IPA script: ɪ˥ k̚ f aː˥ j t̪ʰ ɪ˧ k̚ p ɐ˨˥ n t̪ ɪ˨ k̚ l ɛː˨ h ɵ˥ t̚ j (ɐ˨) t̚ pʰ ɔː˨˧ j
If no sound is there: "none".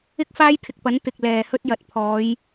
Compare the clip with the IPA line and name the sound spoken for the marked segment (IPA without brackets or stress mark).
ɐ˨